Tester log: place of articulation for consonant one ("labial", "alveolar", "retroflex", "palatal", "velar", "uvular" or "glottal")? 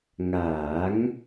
velar